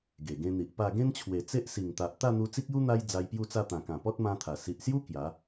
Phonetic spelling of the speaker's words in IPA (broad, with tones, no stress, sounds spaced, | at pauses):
ɡ e˨˩ ɡ ẽ˧ n̪ i˨ ʔ p a˥˧ ɡ ẽ˦ n t͡ɕʰ w e˨˩ t͡s e˦ ʔ s i˨˩ ŋ t̪ a˨ ʔ t̪ a˥˧ n̪ u˧ t͡s i˦ k̚ j u˦ n̪ a˦ j d͡z a˧ j p j u˥˧ t͡s a˥˧ t̪ ã˨˩ k ã˨˩ p ɔ˦ t̚ m ã˦ t̪ʰ a˨˩ s i˨ ʔ s j u˦ k j a˨˦